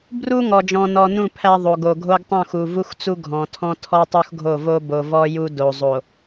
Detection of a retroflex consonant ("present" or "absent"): absent